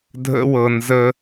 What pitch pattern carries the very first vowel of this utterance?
high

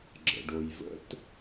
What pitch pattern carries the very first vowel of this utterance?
low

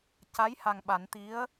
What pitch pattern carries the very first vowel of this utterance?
rising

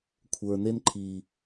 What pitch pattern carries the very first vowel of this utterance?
low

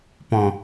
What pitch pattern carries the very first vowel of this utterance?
low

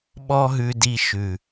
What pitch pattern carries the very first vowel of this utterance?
high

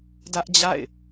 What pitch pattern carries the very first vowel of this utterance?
high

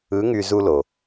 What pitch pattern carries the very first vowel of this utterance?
rising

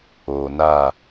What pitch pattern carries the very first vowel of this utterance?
low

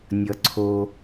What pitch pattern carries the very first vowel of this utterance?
low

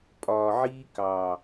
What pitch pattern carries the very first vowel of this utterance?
low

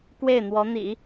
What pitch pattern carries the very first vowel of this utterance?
falling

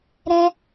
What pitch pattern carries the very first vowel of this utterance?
high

